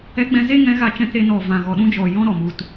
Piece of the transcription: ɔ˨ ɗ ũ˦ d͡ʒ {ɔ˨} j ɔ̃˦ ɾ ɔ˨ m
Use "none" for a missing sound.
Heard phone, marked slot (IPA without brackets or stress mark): ɔ˨